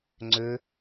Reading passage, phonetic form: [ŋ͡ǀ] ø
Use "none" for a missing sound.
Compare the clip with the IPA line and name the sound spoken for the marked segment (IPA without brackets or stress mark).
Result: ŋ͡ǀ